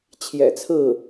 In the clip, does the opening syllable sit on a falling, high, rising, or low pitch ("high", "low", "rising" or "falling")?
low